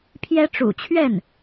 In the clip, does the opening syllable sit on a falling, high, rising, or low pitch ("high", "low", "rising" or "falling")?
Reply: high